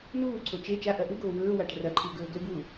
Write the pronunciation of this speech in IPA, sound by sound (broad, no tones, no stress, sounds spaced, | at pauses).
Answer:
n uː ǀʰ o t͡ʃ e t͡ʃ a ʔ ɐ ʔ u ɡ oː w ɵː w a ʈ r ɐ ǃʰ ɨ ɡ ɵː ɡ l ɵ ɡ w u